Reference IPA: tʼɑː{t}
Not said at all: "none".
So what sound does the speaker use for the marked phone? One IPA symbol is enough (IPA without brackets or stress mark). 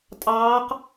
q